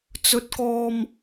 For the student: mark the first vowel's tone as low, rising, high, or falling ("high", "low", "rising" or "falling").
high